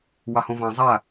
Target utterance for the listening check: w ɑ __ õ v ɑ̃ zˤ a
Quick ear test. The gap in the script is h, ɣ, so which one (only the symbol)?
h